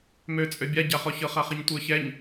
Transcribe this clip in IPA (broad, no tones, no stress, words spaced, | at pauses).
møt͡sʼø bʲaɟaχɔçɤ χaχiɲtʷə˞çɛɲ